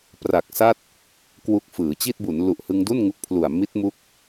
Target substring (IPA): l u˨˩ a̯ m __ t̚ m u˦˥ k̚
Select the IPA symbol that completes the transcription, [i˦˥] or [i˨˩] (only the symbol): i˦˥